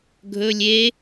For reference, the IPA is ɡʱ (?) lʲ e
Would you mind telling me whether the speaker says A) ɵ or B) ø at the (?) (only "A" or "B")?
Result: A